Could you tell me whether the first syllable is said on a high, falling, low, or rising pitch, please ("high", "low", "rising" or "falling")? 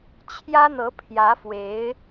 high